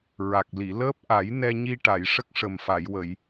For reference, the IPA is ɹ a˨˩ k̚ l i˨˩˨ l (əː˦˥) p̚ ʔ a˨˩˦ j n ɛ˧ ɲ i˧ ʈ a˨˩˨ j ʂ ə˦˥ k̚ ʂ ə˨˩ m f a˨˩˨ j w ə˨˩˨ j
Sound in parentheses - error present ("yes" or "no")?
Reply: no